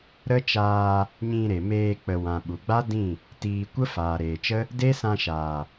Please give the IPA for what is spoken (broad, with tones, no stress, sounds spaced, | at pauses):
ɾ ə˦ t͡ʃ aː˧ | ɲ ĩ˧ ɾ e˨ m eː˧ k͡p ə˨ w ã˨ ɓ u˨ ɡ͡b a˦ d ĩ˦˨ | t iː˧ kʷ ə˦ f aː˨ ɾ eː˨ t͡ʃ ə˦ | d e˦ s ã˧ ʃ aː˨